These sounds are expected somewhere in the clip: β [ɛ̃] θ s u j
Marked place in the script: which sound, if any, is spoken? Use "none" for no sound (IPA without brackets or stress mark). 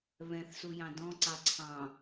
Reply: ɛ̃